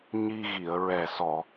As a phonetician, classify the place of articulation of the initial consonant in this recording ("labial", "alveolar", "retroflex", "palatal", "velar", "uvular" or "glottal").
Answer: palatal